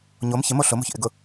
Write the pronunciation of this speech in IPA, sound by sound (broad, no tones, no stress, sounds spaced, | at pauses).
ɲ o m ç ɪ m o ɬ ʊ m o̤ ç ʔ ɪ ɡ ʊ